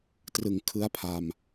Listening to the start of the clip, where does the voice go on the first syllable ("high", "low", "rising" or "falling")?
low